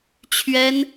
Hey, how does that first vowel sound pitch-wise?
high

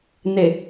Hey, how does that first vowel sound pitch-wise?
low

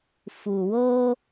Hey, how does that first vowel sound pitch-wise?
low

